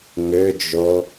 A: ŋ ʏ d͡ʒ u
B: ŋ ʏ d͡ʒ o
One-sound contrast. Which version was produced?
B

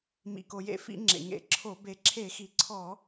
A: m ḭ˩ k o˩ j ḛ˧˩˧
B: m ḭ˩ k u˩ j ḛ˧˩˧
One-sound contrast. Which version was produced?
A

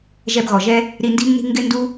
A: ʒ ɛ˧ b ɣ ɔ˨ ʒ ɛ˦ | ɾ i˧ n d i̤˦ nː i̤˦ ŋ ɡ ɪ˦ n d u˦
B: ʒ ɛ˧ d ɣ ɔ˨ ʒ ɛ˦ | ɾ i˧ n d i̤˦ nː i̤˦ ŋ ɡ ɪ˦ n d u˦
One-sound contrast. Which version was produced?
A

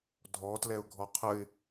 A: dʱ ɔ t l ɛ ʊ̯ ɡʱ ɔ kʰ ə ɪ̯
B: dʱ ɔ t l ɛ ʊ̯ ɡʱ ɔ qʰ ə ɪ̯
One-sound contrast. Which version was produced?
B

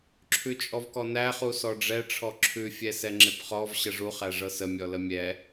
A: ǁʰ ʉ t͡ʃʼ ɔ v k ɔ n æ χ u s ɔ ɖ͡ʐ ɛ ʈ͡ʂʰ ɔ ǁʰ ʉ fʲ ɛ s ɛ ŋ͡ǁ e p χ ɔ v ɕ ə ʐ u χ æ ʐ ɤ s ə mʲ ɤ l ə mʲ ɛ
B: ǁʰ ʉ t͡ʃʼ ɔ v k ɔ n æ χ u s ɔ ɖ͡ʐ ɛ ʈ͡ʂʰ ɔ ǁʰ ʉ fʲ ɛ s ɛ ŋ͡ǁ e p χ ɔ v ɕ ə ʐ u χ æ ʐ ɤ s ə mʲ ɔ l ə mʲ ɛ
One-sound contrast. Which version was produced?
B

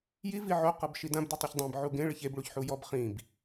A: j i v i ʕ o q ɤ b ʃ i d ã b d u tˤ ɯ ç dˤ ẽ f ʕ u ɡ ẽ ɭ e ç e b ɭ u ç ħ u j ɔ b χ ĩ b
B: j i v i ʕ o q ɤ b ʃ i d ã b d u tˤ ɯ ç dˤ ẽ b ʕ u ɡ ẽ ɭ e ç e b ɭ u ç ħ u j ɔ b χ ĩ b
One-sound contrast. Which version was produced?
B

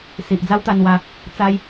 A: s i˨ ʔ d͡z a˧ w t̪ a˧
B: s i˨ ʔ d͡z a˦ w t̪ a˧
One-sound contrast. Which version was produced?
B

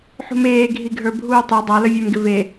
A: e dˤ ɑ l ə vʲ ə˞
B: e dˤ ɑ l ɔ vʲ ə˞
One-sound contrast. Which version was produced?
A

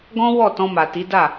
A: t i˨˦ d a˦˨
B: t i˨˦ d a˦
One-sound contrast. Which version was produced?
A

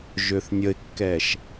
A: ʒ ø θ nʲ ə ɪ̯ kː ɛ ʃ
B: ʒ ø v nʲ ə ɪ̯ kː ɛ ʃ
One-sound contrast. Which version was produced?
A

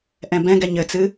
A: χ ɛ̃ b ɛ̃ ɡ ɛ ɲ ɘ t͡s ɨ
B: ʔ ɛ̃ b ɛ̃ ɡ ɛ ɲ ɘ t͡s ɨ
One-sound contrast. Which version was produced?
B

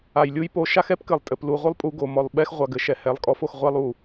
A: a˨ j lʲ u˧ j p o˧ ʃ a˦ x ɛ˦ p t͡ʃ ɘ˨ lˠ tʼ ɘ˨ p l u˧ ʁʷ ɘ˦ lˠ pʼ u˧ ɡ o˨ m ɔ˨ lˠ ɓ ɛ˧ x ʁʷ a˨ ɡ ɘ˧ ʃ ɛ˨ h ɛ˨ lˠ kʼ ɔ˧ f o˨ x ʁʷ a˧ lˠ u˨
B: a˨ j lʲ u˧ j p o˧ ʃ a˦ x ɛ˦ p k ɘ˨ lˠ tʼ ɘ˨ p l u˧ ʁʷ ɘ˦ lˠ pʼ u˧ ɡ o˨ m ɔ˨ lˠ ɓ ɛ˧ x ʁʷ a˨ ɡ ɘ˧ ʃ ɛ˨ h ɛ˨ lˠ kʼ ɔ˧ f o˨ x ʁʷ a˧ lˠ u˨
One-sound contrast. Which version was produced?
B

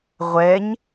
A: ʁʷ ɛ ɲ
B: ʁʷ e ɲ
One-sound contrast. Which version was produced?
A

